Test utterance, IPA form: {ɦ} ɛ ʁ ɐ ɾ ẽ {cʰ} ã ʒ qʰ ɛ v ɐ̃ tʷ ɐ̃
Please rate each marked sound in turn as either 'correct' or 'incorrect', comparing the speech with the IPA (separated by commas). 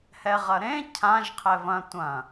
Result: incorrect, correct